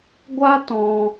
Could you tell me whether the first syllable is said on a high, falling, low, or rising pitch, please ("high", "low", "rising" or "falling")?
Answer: high